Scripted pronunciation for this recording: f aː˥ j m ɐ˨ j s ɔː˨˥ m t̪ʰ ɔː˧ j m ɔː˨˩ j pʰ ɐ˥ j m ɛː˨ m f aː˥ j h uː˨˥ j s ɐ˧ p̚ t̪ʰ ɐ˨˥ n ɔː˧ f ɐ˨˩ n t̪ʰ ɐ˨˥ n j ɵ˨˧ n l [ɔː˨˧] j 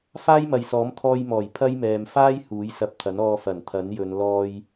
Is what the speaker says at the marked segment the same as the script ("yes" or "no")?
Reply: no